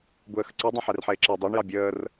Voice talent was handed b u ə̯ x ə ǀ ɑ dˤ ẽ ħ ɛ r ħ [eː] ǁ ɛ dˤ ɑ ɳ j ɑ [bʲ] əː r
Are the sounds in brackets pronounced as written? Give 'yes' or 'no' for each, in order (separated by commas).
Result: yes, yes